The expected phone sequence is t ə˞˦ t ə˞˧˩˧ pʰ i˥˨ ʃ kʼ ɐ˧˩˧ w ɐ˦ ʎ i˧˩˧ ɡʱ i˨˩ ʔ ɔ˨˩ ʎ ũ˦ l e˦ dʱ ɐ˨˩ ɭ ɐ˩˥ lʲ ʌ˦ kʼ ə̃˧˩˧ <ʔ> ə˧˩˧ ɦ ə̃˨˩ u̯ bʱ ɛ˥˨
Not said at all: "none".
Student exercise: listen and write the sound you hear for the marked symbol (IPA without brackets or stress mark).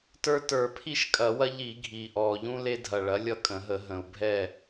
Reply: ɦ